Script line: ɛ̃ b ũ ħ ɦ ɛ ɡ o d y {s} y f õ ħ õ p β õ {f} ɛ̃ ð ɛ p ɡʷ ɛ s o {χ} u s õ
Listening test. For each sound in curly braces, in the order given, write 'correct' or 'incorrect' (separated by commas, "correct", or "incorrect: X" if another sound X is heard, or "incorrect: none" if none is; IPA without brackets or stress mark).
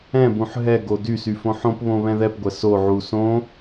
correct, incorrect: β, incorrect: ʕ